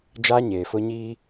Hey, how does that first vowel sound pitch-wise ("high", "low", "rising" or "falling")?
high